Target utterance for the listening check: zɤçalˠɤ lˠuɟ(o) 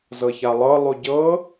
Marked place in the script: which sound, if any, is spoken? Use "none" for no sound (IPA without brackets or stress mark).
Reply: ɤ